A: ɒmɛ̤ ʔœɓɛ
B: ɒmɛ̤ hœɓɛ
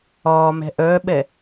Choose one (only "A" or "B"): A